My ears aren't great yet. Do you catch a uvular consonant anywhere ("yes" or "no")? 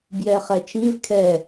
yes